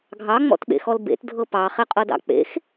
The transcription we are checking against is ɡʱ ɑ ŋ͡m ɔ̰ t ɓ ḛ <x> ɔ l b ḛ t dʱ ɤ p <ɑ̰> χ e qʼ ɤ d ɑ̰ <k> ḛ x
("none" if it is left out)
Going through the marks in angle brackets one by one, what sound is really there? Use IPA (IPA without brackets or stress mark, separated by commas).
x, ɑ, k͡p